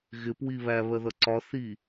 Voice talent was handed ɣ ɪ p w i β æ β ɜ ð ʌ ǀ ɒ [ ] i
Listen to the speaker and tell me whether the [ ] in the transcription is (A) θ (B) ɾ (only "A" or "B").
A